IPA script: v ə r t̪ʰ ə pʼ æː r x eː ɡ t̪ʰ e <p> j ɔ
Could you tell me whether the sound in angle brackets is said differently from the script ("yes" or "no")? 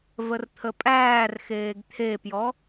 no